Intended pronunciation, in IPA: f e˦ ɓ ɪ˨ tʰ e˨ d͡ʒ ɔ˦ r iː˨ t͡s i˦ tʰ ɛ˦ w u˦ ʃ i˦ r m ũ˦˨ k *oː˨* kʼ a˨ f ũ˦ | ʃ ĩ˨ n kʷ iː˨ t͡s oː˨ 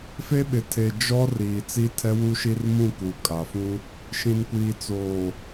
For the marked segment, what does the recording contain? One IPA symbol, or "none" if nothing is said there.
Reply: uː˨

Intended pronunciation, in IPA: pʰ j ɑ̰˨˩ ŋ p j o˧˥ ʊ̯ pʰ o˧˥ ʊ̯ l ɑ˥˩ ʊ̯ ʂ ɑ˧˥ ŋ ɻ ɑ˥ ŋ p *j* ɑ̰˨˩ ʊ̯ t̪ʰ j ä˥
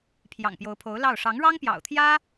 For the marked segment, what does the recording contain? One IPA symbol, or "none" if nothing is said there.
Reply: j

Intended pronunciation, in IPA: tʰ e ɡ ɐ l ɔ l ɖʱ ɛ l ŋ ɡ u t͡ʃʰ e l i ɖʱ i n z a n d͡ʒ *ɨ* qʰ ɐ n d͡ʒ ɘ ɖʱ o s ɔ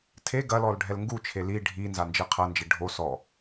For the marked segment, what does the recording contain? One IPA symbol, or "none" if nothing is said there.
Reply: ɨ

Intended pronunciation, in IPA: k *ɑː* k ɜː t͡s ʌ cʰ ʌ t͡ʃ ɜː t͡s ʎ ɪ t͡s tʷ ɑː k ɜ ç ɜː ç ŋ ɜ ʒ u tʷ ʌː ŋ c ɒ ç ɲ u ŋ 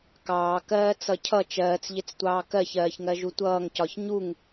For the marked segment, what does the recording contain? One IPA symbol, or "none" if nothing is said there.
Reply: ɑː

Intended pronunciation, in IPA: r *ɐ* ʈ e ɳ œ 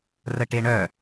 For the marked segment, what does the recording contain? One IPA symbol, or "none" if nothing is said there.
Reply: ə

